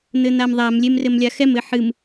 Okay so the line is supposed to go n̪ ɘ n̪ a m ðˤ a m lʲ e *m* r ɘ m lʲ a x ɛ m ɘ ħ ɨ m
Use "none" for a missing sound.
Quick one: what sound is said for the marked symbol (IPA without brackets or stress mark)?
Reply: m